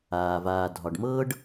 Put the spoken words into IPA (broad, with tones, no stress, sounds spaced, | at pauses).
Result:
aː˩ v aː˨ dʱ ɒ˩ ɖ m ɤː˦ ɖ